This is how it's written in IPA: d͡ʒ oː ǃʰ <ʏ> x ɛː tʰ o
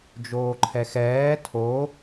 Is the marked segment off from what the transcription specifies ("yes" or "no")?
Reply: yes